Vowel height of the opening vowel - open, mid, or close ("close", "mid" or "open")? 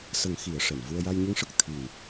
mid